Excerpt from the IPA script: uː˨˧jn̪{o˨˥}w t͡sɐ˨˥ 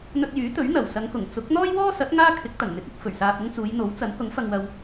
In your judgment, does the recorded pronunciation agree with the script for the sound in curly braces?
yes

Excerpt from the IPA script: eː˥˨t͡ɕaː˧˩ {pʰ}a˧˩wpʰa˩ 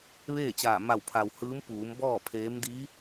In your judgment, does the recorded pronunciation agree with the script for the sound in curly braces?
no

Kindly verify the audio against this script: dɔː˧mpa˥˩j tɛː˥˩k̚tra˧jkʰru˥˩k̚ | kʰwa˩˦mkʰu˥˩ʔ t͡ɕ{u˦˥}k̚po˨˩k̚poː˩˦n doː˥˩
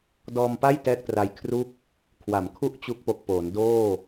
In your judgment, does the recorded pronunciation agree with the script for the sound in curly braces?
yes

